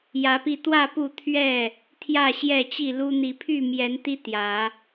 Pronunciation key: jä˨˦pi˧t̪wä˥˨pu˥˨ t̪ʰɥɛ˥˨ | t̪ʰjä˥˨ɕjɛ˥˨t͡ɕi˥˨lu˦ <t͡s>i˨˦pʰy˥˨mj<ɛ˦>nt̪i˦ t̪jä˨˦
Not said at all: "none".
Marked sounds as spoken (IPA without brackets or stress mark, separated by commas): n̪, ɛ˨˦